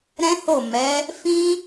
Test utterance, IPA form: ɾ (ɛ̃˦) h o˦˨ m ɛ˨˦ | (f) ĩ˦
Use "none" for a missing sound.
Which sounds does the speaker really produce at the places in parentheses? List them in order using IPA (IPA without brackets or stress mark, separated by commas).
ɛ̃˦, f